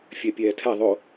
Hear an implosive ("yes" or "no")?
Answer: no